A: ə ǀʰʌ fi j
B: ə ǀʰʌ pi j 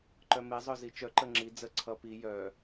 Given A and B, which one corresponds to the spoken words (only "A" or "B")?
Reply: B